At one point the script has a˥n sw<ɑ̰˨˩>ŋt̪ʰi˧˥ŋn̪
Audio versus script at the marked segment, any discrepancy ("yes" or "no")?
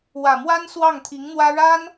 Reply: yes